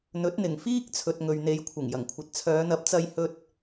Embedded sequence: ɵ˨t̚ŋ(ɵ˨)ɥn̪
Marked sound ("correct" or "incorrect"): correct